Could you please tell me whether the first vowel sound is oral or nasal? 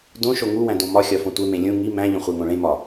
nasal